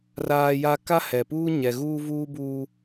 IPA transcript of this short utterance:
r aː˦ j a˦ k a˦ h ɛ˨ p uː˦ ɲ ɛ˨ ɣ uː˦ v uː˦ b uː˦

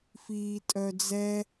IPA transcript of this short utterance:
f iː tʼ œ d͡z ɛ

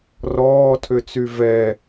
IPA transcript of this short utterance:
r ɔː tʰ ø t͡s y v ɛ

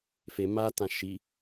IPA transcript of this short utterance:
f e m a t ã ʃ i

